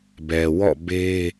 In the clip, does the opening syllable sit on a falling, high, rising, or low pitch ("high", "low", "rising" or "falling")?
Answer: low